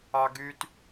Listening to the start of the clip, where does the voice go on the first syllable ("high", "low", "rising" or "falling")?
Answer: high